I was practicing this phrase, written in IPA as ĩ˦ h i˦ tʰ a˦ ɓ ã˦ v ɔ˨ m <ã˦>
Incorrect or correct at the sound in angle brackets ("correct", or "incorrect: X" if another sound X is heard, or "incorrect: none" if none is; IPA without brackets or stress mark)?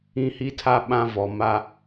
incorrect: a˦